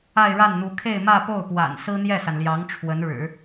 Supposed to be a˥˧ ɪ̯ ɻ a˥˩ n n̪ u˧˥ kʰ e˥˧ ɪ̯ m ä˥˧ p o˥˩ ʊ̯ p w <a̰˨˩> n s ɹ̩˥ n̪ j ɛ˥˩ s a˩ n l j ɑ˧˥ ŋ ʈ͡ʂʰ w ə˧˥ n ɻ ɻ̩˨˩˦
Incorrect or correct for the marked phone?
correct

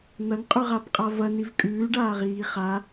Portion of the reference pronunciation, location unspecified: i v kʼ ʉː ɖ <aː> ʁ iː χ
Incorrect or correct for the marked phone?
correct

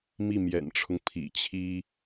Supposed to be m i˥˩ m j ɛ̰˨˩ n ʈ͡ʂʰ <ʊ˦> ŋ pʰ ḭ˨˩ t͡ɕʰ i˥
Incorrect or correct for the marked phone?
correct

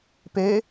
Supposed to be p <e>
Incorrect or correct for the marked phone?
correct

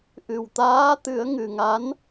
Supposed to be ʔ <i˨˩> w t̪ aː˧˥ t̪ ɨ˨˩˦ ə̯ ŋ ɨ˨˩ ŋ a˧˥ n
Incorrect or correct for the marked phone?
incorrect: ɨ˨˩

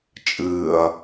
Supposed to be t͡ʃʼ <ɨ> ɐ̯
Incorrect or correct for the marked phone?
incorrect: ɨː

